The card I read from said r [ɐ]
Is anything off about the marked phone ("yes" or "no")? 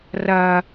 no